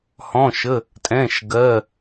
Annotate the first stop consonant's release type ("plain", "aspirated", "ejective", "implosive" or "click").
ejective